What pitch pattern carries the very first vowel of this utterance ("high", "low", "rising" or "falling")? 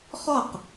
falling